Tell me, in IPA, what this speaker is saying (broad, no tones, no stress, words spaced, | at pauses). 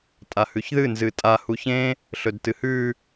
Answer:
tʼahʉçðɨ nzɨtʼa huçẽ | ɬɵdtɨhʉ